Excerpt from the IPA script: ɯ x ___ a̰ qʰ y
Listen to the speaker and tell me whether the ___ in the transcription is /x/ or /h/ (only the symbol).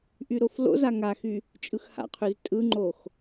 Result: h